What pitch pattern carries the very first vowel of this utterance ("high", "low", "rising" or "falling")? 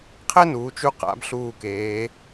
high